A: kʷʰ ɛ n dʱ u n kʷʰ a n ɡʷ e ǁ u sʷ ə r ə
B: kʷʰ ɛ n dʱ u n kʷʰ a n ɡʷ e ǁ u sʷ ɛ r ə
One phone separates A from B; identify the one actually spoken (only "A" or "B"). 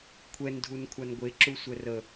B